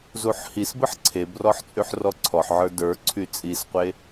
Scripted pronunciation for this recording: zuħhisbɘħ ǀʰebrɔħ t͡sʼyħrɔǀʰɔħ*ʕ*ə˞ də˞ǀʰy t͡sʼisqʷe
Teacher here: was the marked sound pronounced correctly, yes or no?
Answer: yes